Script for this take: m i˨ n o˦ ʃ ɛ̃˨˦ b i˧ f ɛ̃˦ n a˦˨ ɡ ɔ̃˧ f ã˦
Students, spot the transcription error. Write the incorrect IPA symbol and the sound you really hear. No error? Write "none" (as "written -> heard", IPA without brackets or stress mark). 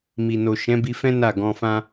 o˦ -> o˨